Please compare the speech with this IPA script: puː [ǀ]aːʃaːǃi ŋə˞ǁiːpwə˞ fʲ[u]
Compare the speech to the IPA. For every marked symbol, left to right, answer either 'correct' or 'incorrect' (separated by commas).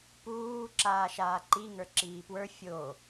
incorrect, incorrect